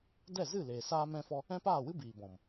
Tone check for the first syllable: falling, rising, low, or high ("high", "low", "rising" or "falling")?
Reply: falling